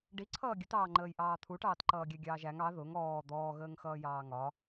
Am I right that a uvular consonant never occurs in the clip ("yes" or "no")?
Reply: yes